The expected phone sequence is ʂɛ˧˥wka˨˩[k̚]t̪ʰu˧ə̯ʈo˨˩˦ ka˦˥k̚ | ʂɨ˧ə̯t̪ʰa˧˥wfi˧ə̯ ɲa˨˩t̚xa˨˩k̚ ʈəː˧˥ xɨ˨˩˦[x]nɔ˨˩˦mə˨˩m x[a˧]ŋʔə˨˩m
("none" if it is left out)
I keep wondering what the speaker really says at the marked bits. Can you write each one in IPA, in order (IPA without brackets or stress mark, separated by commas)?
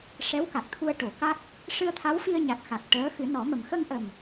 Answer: k̚, none, ə˧